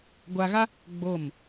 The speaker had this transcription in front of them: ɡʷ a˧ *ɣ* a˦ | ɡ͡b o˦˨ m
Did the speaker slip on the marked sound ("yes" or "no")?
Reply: no